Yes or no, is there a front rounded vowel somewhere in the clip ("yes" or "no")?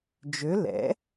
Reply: yes